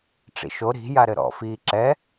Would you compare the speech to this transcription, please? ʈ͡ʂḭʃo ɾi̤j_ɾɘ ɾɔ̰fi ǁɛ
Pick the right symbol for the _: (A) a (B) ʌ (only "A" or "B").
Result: A